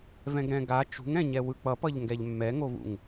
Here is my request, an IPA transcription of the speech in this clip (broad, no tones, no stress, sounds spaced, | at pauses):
v ɛ̃ ɡ ɾ ɛ̃ ɡ a t͡ʃ ṳ ŋ ɛ̃ ɲ ɛ w ɯ k͡p ʌ p ʌ ʎ ŋ ɡ ɛ ʎ mː ɛ ŋ o v ṵ ŋ